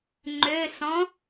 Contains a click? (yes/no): yes